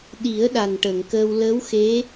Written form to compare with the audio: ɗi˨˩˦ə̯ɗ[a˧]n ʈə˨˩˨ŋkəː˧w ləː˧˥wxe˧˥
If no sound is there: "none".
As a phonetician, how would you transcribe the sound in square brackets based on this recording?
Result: a˨˩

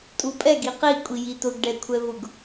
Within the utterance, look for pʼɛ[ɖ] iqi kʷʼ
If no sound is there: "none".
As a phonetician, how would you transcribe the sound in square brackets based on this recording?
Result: ɡ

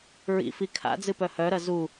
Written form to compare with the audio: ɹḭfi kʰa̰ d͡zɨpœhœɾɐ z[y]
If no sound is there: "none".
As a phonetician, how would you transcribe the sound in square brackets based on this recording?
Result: u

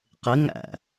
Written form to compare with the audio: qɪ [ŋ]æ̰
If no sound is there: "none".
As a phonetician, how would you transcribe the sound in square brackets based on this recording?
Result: ŋ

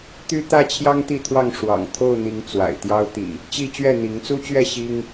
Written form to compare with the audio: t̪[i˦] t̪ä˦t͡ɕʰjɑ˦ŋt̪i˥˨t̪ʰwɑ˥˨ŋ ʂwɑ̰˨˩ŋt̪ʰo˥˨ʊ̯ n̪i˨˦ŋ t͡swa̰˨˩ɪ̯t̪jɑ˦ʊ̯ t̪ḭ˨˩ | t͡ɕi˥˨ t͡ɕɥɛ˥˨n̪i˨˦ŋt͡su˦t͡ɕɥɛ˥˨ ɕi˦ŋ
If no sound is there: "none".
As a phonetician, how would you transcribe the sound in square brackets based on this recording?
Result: y˦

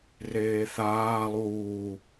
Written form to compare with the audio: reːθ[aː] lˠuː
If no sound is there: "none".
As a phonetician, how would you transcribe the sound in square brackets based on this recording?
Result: aː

